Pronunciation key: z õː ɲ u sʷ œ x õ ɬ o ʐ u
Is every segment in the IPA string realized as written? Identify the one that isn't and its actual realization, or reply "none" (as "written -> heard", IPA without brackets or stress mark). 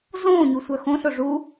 none